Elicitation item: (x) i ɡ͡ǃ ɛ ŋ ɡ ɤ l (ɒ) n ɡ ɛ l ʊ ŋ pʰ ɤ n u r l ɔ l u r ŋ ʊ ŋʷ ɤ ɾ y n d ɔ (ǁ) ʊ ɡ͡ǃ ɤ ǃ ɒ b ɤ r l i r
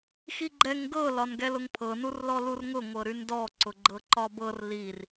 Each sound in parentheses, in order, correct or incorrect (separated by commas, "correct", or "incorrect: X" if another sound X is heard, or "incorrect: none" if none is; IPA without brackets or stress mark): correct, correct, incorrect: ǀ